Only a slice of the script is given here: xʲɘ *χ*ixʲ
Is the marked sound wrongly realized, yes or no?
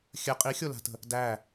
yes